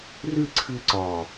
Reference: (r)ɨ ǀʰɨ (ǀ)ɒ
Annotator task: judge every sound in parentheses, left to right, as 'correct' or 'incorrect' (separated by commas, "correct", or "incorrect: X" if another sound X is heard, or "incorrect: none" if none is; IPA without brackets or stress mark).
correct, correct